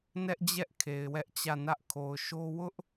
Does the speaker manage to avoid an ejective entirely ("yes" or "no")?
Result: yes